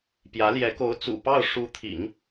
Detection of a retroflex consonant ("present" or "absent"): present